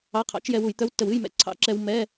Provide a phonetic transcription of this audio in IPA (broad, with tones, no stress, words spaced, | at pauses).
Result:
ɑ˧˥˧qʰɑ̰˧˥t͡ʃ jɛ˧wu˧˩˧jt̪œ˧˥˧w tːə˧˩˧wɨ˧˥˧jmɛ̰˧˩˧ ǀʰɑ̰˧˥ǁɛ˧w mɛ˧˥˧